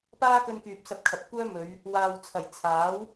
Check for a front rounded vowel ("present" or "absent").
present